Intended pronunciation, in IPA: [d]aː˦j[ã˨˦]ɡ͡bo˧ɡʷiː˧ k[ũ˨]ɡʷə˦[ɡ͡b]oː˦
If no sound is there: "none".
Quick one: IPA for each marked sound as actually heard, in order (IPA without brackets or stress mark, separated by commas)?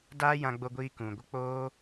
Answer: d, ã˧, ũ˨, k͡p